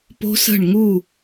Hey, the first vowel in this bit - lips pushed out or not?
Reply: yes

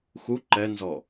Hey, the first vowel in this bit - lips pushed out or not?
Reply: yes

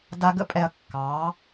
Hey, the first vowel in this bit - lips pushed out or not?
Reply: no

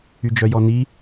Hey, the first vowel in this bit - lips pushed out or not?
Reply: yes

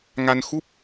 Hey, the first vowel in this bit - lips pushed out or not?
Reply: no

